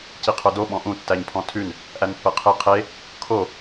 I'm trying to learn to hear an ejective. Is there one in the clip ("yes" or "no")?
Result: no